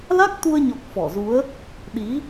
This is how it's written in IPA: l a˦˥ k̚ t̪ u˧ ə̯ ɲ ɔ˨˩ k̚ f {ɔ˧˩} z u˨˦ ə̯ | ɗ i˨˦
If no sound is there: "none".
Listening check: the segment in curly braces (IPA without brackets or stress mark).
ɔ˧˩